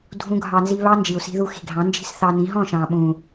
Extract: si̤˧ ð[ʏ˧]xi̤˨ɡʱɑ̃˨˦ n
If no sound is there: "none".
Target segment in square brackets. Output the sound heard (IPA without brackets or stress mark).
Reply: u˧